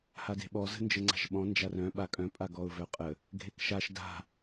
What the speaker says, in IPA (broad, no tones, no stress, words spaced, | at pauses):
hade̤ɓɔ zə̤nd͡ʒəŋ͡ǀa̤ʃɓɔ̃ nd͡ʒarœ̃ ɓakʼœ̃ pʼaɡɔʊ̯vœqʼə | ɡʱekʃaʃ da̤